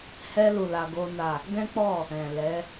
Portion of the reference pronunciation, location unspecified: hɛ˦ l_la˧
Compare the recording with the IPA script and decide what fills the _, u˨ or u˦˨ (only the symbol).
u˦˨